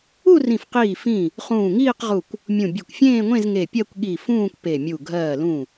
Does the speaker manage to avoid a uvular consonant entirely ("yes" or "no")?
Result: no